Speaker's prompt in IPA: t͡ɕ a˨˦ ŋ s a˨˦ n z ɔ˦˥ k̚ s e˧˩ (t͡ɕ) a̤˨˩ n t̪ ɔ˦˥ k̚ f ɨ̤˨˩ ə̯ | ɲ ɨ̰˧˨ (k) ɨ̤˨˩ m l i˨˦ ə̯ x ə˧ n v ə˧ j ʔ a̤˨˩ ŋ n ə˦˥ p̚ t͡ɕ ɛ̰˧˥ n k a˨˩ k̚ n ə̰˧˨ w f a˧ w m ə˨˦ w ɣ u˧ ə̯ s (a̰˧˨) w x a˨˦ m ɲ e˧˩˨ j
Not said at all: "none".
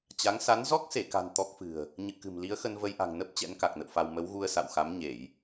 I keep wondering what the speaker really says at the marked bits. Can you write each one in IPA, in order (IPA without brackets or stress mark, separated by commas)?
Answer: k, k, a̰˧˨